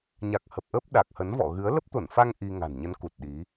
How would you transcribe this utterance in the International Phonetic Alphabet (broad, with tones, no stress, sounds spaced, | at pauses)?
ɲ a˨˩ k̚ h ə˨˩ p̚ ʔ ə˦˥ p̚ ɗ a˨˩ k̚ h ə˨˦ n v ɔ̰˧˨ ɣ ɨ˨˦ ə̯ l ə˦˥ p̚ t̪ o˧˩ n f a˧ ŋ ʔ i˧ ŋ a̤˨˩ n ɲ ə˨˦ n k u˨˩ t̚ ɗ i˨˦